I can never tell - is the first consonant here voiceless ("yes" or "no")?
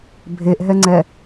no